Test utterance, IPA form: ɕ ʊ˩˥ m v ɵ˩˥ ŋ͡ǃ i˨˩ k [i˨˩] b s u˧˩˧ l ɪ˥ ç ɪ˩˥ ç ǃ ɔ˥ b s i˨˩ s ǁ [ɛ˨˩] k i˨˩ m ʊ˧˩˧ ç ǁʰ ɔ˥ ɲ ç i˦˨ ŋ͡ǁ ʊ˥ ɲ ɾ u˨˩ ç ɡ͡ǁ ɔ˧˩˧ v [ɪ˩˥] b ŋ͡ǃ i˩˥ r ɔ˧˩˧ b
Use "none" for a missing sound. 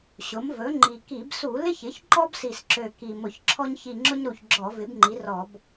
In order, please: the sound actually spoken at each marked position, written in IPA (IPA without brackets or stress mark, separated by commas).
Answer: i˧˩˧, ø˨˩, ɪ˩˥